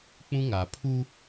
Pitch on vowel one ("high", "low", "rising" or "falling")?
high